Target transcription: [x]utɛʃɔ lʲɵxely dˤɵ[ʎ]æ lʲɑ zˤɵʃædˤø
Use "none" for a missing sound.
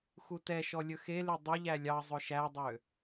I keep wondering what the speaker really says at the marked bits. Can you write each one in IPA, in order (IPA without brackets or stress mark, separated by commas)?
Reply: x, ʎ